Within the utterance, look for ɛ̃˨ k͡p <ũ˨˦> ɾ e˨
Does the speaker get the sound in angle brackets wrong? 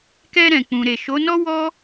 yes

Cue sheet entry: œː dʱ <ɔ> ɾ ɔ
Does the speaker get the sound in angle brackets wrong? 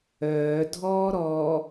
yes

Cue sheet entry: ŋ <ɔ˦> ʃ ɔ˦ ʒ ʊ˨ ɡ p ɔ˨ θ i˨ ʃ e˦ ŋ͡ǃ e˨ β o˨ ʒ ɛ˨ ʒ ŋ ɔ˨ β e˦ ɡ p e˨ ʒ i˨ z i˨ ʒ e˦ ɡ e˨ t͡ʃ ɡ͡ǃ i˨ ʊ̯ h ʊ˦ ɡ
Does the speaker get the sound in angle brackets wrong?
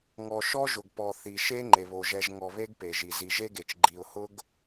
yes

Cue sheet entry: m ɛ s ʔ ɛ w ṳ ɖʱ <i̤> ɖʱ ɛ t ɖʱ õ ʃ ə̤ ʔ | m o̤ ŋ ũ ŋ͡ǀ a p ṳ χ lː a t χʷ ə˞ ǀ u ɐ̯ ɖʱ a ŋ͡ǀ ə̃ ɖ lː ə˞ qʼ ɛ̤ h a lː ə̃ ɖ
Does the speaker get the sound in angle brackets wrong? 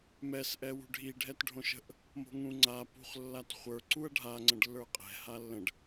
yes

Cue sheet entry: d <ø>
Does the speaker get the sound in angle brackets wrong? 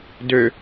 no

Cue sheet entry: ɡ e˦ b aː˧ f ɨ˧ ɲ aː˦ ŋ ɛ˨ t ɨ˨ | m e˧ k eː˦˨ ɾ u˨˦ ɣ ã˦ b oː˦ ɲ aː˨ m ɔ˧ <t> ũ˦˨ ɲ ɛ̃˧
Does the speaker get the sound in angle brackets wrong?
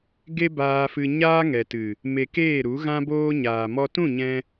no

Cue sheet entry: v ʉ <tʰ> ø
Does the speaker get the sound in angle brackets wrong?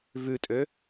yes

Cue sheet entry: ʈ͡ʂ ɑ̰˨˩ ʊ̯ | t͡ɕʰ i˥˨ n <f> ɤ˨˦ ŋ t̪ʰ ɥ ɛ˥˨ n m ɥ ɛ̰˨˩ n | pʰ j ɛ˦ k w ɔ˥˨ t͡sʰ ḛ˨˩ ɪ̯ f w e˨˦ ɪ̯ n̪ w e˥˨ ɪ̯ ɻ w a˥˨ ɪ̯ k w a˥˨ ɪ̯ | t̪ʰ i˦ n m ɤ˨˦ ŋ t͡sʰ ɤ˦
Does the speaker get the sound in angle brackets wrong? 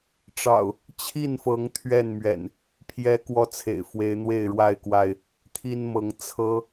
no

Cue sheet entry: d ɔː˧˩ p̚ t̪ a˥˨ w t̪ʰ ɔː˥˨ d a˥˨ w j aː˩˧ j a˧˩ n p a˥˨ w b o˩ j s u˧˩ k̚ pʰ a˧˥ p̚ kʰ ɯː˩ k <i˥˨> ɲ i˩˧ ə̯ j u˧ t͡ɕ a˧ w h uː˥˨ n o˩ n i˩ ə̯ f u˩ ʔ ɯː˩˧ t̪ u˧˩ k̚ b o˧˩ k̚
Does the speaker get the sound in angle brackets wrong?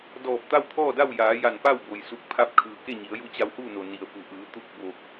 yes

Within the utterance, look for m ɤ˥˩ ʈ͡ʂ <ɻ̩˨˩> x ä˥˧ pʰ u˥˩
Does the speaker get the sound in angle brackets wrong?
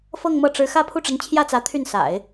yes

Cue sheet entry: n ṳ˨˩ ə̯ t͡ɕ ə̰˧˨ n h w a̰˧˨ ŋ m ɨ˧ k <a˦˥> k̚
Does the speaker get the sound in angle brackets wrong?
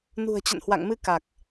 yes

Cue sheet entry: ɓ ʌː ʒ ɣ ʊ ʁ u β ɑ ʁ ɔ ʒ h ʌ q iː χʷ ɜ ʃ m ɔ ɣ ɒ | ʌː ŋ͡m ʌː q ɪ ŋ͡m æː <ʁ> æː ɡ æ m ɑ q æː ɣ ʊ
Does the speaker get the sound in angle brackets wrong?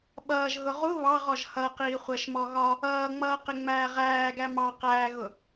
no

